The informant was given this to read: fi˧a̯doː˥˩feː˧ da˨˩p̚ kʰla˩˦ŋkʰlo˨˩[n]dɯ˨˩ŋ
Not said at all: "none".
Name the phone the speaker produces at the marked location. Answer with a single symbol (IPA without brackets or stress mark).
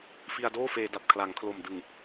m